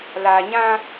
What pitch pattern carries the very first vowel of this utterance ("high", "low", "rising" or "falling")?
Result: low